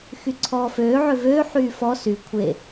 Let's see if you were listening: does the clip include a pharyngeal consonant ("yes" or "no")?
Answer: yes